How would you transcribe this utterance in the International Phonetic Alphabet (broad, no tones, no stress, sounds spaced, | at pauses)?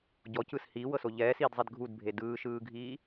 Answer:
ɟ ɔ c ɯ s h iː w ɤ s o ʎ ɛː s iː d zˤ e d ɡʱ u d bʱ e d ɯː ʃ ɯː ɡʱ iː